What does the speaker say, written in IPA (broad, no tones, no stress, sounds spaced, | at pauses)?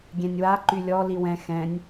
ɡʲ ɛ̃ nʲ w a ǃ y lʲ ɔ l i w ɛ̃ x ɛ̃ nʲ